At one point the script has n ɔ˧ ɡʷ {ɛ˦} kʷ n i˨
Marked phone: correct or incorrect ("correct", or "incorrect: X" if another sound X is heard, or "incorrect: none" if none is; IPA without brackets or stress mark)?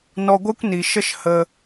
correct